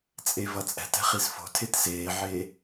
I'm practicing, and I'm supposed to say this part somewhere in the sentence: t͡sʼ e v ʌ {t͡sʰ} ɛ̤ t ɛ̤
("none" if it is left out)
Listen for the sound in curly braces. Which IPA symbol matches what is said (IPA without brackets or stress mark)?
t͡sʼ